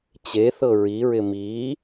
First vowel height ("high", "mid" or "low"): mid